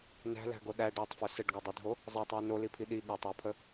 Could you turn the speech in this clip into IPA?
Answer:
n æ̤ l æ̤ ɡ o ɗ æ ɖ æ tˤ f ɵ s ə ɖ ɡ ɵ dˤ ɵ dʱ o | zˤ æ tˤ w i n o l i pʰ i ɗ i ɠ æ tˤ j ə pʰ ə

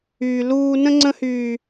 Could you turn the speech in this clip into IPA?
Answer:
yː˦ l uː˦ n ə̃˦ ŋ͡ǀ ə̃˦ h yː˦

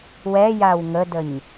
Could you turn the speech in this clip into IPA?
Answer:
w ɛ j a w ŋ ə d ə ɲ

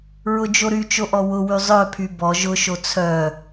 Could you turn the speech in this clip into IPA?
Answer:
ɹ ʊ d͡ʒ o ɾ y t͡ʃ o ʔ ɔ w ʊ w y zˤ œ pʰ y b ɔ ʒ ʊ ʃ o t͡sʰ œ

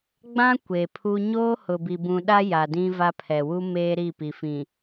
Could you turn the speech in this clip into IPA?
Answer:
ɡ͡b ã˦ kʷ e˨ pʰ u˦ ɲ oː˦ h ʊ˨ b i˨ b ũ˨ ɗ a˦ j a˨ d ĩ˦ v a˦ pʰ ɛ˨ w u˦ m eː˦ ɾ i˦˨ p i˨ f ĩ˨

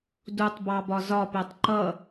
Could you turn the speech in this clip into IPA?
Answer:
d u tˤ b ɑ b ɒ z ɒ p ɛ tˤ ǃ ʌ

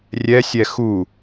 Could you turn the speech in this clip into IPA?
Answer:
rʲ ɛ sʲ ɛ x u

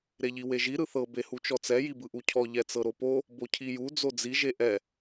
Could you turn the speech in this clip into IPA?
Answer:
ɾ e ʎ i w e ʒ i ɾ ɯ θ ɤ b e h u t͡ʃ ɔ t͡s ɛ j i b ɯ ʔ u cʰ ɔ ʎ ɛ t͡s ɤ ɾ o p o | b o cʰ i j u d͡z o d͡z i ʒ e ʔ ɛ

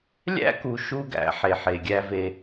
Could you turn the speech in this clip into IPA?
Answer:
lʲ æ̰˦ k u˨ ʃ u˦ ɡ æ̰˨˦ ħ e˨ ħ e˨ ɡʲ æ˦ v e˦

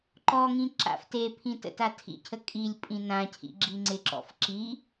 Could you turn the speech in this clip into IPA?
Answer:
ǃ ɔ ŋ ĩ ǁ a̰ f t e pʰ ĩ t ə̰ t a tʰ ḭ cʰ ə kʼ i lʲ pʼ ĩ n ã cʰ ḭ ɡ͡ǁ i ŋ͡ǀ ɪ ǁ ɔ̰ f ǁ i

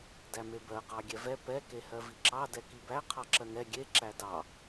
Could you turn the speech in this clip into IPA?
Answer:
d æ m e b ɜ q ɑ ɡʲ ɛ v ɛ p ɛ k e h ɜ v i ǁ ɑ d ɛ k i b æ qʰ ɑ ǁ ɜ ŋ ɛ ɡʲ e ǁ æ d ɑ

